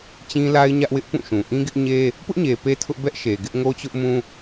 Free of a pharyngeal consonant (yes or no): yes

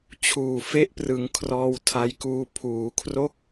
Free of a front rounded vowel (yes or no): yes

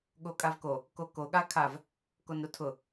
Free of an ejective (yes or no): no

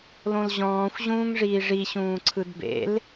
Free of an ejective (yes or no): yes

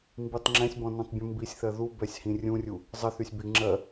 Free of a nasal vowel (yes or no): no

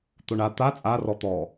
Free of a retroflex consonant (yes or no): no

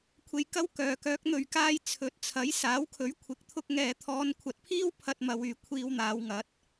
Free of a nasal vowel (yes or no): yes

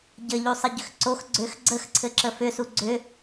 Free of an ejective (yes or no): yes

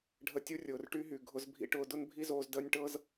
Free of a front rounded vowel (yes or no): no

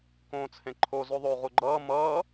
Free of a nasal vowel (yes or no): no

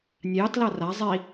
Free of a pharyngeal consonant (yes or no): yes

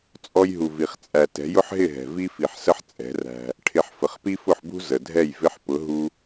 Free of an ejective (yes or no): no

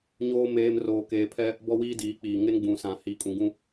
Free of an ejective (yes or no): no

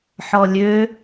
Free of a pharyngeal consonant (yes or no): no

